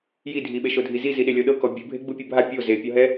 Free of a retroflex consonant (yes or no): yes